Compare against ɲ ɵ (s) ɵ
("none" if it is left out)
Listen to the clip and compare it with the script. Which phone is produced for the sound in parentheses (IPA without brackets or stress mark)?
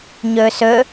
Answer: s